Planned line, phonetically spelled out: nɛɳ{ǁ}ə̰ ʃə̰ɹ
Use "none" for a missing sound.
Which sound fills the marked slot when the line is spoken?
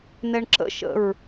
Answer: ǁ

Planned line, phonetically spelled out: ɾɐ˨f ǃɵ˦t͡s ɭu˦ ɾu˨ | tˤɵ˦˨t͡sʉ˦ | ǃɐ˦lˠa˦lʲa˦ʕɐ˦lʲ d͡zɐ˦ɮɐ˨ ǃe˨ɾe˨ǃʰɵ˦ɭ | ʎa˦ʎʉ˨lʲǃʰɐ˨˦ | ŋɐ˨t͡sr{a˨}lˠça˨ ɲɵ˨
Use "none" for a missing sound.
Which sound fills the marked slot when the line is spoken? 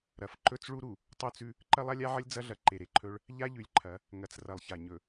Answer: ɐ˨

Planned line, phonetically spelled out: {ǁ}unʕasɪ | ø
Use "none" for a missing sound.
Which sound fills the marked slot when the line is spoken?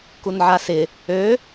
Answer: k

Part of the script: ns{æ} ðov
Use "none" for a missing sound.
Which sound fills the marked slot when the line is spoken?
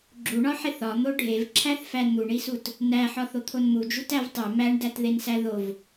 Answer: æ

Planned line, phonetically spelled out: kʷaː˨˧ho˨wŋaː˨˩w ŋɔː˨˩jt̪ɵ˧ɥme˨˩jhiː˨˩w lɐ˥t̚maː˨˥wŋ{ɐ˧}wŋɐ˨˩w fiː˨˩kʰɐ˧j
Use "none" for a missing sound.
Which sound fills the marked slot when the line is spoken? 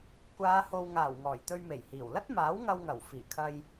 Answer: ɐ˧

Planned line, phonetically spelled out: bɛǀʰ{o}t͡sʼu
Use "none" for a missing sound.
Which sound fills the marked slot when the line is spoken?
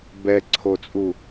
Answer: o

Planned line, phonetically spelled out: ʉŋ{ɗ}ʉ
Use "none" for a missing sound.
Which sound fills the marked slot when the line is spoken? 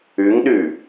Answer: ɗ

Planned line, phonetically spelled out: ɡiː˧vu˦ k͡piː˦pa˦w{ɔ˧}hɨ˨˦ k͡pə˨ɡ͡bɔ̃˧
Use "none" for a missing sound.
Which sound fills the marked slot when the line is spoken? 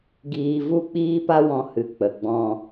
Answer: ɔ̃˧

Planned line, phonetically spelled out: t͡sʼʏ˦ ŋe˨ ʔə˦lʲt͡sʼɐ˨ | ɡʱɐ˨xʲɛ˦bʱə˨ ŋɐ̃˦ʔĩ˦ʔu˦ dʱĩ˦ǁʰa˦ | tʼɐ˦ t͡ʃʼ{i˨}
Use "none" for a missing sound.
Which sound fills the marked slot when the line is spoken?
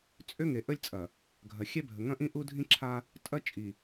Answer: i˨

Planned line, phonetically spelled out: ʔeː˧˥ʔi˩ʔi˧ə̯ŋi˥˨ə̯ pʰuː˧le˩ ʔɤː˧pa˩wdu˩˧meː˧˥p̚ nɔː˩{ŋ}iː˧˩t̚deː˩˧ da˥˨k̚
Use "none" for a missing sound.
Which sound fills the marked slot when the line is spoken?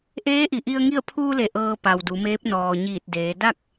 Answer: ɲ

